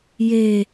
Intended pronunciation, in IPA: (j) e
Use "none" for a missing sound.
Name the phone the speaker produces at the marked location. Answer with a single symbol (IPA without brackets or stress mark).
j